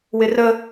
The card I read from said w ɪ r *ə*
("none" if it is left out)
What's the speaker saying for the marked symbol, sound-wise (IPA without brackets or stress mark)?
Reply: ə